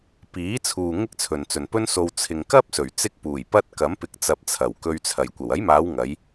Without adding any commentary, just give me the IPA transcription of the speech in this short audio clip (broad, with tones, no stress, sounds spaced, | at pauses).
p iː˨˥ t͡sʰ uː˨ ŋ ɪ˥ k̚ t͡sʰ ɵ˨ n t͡s ɵ˨ n p ɵ˥ n s o˧ w t͡sʰ ɪ˨ ŋ k ɐ˥ p̚ s ɵ˨˩ ɥ t͡s ɪ˧ k̚ p uː˨˩ j p ɐ˧ t̚ k ɐ˨˥ m p ɪ˨˥ k̚ t͡s ɐ˨ p̚ t͡sʰ ɐ˨˩ w k ɵ˧ ɥ t͡sʰ ɐ˨˩ j kʷ ɐ˨˩ w ɐ˨˥ j m aː˨˧ w ŋ ɐ˨˧ j